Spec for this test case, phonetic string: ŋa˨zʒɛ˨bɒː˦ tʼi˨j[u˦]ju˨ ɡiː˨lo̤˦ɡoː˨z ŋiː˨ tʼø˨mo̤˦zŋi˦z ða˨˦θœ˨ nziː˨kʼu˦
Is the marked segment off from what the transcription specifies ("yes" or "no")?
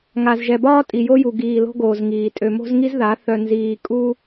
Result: yes